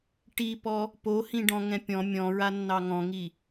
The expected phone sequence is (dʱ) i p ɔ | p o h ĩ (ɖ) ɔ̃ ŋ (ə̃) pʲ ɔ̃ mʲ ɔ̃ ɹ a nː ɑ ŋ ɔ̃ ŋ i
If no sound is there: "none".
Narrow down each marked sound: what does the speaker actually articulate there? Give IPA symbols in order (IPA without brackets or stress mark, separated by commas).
ʈ, ɖ, ɛ̃